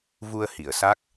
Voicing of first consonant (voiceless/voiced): voiced